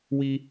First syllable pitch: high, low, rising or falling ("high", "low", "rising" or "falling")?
high